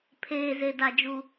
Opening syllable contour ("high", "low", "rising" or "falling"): low